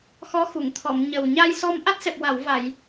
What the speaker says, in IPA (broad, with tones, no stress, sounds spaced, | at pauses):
x ɔ˧˥ x u˨˩˨ ŋ t̪ʰ ɔ˨˩˨ m ɲ ə˨˩ w ɲ a˧ j s ɔ˧ m ʔ a˦˥ t̚ s ɛ˨˩ p̚ w a˨˩˨ w v a˨˩˨ j